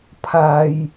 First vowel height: low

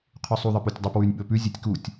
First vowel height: high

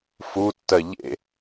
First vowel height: high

